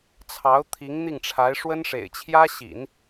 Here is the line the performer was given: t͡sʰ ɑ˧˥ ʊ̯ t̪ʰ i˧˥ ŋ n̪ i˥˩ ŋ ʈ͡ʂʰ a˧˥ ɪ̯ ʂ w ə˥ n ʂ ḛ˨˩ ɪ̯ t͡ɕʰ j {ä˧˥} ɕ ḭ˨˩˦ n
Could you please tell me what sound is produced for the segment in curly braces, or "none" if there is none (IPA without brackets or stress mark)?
ä˥